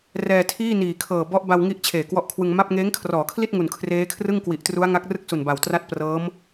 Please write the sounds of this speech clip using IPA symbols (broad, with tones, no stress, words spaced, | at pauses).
rɛː˧tʰiː˥˩niː˨˩kʰɤː˨˩ bɔ˦˥ʔba˧wŋi˦˥ʔ t͡ɕʰeː˨˩kwɔ˦˥ʔkʰwɯ˧ŋ ma˥˩p̚ ŋeː˦˥ŋkʰrɔː˩˦kʰli˥˩t̚ ŋu˨˩nkʰreː˦˥kʰrɯ˥˩ŋ kwi˨˩ʔtru˦˥a̯ŋa˦˥k̚ rɯ˥˩k̚su˨˩n ba˨˩wtra˥˩t̚ prɤː˦˥m